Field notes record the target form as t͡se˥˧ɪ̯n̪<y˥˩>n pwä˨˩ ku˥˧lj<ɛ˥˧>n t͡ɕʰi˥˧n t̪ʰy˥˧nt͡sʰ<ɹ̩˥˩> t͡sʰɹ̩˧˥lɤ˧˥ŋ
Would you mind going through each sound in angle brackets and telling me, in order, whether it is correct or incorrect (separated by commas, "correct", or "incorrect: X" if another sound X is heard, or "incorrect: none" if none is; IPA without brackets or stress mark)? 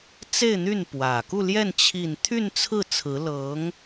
correct, correct, correct